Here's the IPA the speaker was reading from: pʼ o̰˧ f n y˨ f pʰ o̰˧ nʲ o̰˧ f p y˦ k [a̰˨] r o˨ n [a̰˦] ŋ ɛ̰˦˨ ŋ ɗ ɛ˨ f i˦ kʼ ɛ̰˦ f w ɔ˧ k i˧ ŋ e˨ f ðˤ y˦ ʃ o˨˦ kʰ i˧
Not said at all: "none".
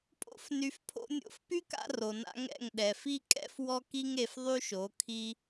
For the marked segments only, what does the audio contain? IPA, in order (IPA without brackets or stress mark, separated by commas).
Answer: a̰˧, a̰˦